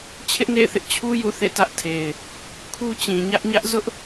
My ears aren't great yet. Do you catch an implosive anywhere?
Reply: no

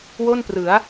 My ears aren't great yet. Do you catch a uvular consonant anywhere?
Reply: no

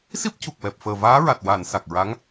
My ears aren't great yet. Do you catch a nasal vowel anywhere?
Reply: no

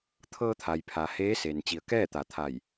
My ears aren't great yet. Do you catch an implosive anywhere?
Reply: no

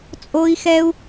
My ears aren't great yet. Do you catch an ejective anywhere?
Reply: yes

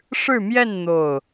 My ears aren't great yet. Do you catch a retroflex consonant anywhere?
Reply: yes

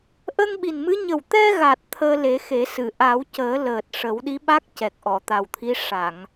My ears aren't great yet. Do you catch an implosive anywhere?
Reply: yes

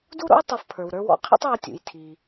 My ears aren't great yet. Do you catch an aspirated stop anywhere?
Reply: yes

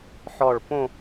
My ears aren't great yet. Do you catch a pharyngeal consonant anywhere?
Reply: yes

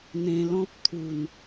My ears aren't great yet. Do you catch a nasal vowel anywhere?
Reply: yes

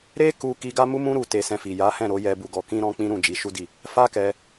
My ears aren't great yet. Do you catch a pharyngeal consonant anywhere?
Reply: no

